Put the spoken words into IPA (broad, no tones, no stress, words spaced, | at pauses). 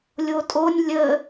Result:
lʲotʼonʲ lʲə